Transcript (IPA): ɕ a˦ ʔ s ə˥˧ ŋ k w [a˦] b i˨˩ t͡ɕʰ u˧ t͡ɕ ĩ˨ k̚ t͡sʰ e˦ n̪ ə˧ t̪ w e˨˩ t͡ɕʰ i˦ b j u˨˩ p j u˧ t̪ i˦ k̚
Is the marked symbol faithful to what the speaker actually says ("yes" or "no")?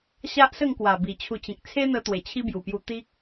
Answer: no